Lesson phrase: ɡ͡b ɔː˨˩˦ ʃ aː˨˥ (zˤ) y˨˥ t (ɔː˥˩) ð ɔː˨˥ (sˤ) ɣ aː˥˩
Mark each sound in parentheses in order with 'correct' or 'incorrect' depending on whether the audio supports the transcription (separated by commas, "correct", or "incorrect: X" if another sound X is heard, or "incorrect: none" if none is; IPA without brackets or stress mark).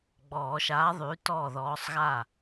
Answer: incorrect: ðˤ, correct, correct